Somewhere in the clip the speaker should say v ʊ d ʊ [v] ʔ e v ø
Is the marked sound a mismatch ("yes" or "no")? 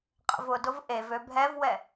no